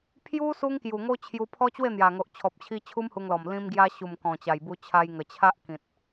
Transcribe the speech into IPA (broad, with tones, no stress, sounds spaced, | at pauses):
pʰ j u˦ s u˦ ŋ k j u˨˩ ŋ o˦ t͡ɕʰ j u˧ pʰ ɔ˦ t͡ɕ w e˥˧ n̪ j a˨˩ ŋ o˨ ʔ t͡ɕʰ ɔ˨ p̚ t͡ɕʰ i˧ t͡ɕʰ u˦ m h u˧ ŋ l ɔ˨˩ m l ĩ˧ m ɡ j a˧ ɕ u˨˩ m k ɔ̃˨˩ t͡ɕ a˨˩ j b u˧ t͡ɕʰ a˧ j ŋ ə˨˩ t͡ɕʰ a˦ ʔ k ĩ˨ t̚